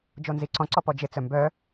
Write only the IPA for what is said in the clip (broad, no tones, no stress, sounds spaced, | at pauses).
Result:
d͡ʒ o n z i ǀ ɔ̃ ǀ ɔ p ɔ d͡ʒ ɪ t͡s œ m b œ